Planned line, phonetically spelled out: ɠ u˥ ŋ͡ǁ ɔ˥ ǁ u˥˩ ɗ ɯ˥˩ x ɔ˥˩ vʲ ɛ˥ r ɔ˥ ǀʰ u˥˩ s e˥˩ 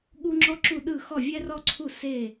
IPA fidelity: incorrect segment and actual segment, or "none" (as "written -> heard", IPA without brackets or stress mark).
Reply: none